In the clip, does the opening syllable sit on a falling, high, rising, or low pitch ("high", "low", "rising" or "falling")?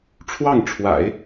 falling